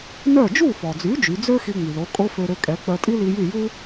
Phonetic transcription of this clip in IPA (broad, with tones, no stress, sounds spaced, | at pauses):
n œ˥˩ d͡ʒ u˥˩ f ɔ˩ d͡z y˩˥ d͡ʒ y˩˥ d͡z ø˥ x i˧ ŋ͡m y˩ l o˩˥ kʼ o˥ f ø˧ ɾ ø˧ kʼ ɛ˩˥ k͡p œ˧ tʼ i˥ l i˧ j y˥˩ j u˥